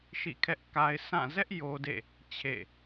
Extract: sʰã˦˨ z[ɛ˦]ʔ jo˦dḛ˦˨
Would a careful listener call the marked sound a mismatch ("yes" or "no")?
no